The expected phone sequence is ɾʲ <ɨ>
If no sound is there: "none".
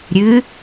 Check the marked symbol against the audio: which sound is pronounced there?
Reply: ɨ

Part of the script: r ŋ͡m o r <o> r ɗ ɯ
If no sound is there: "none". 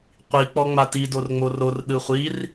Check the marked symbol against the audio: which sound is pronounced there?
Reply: o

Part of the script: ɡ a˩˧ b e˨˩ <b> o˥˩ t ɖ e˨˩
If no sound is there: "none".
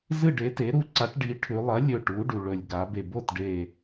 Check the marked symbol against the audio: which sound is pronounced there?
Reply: b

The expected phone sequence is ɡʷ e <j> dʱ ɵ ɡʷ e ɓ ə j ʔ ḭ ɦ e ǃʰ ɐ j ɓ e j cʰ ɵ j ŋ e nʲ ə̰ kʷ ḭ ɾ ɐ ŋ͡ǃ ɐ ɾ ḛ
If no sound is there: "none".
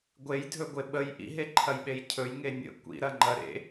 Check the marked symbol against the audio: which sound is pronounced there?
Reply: j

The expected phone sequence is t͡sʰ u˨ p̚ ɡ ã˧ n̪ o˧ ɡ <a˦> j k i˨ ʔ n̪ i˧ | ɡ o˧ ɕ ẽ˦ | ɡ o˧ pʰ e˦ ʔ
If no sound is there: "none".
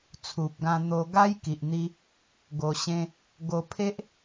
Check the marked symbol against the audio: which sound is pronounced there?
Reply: a˦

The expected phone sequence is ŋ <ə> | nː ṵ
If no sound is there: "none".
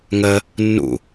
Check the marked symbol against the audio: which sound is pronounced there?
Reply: ə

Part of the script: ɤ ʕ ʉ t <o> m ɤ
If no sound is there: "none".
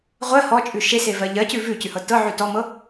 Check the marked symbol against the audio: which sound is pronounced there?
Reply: ɔ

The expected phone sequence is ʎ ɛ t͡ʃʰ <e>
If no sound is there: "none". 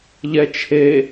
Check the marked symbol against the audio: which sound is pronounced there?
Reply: e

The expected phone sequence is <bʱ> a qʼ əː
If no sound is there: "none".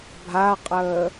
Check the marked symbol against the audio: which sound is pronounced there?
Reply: bʱ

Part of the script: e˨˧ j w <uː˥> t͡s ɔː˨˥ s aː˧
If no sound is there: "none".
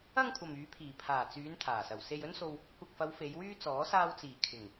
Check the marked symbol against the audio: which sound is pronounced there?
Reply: yː˥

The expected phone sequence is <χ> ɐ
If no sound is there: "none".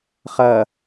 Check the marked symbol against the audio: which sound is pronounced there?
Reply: χ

